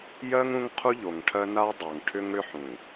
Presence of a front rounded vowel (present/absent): present